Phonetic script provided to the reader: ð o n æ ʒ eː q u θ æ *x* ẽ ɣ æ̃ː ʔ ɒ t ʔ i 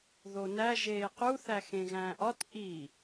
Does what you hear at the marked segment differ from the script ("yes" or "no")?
no